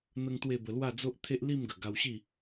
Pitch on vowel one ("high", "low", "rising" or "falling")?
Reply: high